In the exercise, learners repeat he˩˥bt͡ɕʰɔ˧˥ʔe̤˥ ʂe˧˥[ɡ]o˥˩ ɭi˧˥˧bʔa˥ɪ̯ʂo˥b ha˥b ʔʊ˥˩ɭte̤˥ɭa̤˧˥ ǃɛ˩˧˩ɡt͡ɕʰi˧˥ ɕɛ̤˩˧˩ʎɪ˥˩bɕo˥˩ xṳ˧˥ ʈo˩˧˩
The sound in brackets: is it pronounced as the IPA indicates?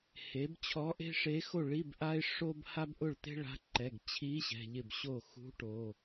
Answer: no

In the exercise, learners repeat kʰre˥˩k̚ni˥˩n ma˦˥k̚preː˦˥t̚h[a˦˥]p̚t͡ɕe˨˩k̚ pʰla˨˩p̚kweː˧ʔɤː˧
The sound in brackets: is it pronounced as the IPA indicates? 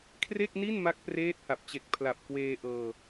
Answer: no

